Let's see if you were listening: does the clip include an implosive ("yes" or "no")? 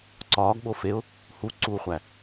yes